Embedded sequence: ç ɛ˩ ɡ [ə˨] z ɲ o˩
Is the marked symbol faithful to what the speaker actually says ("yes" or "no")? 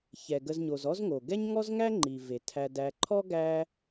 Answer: yes